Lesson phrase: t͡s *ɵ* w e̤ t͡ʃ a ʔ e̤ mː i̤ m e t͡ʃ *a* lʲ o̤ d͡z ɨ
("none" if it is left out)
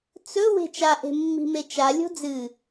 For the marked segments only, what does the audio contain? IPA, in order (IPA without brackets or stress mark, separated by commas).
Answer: ɵ, a